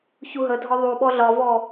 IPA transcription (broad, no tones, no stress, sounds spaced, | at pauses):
ç u ɦ ə dʱ ɒ ðˤ u ɓ ɔ ɮ ɒ v ɔ